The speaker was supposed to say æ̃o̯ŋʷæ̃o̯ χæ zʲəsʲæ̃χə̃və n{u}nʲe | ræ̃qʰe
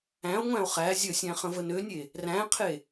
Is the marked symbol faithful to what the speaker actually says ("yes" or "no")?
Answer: no